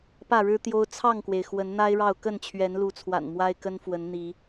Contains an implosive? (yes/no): no